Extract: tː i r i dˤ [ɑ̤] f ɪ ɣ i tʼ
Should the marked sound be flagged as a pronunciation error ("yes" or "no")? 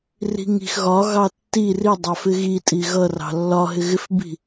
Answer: yes